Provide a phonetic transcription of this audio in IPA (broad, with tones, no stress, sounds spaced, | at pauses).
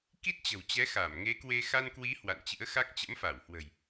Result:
k i˦˥ t̚ t͡ɕ ə̤˨˩ w t͡ɕ ɛ˨˦ x a˧˩ m ŋ e˨˦ k w e˧ x a˧ n k w i˨˦ h w a̰˧˨ n t͡ɕ ɨ̰˧˥ ə̯ x a˦˥ k̚ t͡ɕ ə̰˧˥ m f a˧˩ w h w ə̤˨˩ j